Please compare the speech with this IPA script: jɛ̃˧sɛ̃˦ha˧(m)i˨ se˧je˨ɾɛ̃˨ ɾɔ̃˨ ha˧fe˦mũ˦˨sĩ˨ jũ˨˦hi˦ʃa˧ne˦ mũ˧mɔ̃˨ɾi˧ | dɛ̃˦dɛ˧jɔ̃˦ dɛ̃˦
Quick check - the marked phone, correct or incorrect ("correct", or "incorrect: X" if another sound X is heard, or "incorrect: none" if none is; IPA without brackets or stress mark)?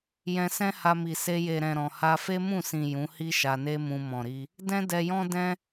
correct